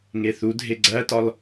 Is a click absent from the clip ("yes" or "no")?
no